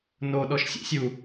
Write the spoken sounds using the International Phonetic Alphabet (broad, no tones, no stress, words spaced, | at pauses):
noɗɔʃ sʲɛ̰sʲu